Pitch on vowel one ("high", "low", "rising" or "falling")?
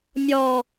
high